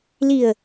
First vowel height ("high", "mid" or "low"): high